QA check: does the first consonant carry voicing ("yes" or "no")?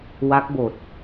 yes